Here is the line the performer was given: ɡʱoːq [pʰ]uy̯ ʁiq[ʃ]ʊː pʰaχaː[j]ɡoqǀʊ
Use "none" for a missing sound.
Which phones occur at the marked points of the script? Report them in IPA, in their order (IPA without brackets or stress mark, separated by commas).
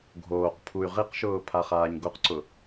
pʰ, ʃ, ɲ